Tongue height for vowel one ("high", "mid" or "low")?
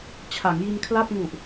low